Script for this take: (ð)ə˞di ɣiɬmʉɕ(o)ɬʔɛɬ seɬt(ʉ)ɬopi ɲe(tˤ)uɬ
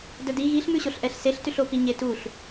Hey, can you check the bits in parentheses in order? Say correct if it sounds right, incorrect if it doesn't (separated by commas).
incorrect, correct, correct, incorrect